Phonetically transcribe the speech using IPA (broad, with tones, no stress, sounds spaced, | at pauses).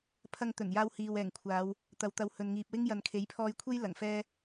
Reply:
pʰ ɐ˧ ŋ t̪ ɵ˨˩ n j aː˧ w h iː˨ w ɛː˨˩ ŋ kʷʰ aː˨˧ w | t̪ ɐ˨ w t̪ ɐ˨˧ w h ɵ˨ n ŋ iː˨ p̚ w ɪ˥ ŋ j ɐ˨ n kʰ e˨˥ j pʰ ɔː˧ j kʷʰ e˥ j l ɐ˨˩ ŋ f ɛː˥